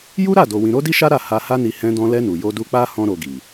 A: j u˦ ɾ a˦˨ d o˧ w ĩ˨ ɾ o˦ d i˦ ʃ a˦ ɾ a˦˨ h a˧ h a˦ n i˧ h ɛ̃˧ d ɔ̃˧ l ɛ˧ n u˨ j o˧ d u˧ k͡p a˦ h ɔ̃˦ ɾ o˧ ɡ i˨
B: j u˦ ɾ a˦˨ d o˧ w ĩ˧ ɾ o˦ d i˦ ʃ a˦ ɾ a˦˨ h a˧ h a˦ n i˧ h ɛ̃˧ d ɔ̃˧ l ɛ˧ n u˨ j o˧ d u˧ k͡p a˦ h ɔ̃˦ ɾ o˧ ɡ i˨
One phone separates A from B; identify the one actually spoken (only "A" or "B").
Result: B